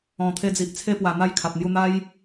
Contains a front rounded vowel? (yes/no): no